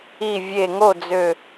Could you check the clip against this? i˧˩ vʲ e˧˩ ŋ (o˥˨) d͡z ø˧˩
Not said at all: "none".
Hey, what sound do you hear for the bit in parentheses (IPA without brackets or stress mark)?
o˥˨